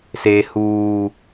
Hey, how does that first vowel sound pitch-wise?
low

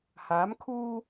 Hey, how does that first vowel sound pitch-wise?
rising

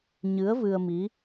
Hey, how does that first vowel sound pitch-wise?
rising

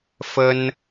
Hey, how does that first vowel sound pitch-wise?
high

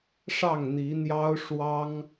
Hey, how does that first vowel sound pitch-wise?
falling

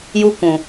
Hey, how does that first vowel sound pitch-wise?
high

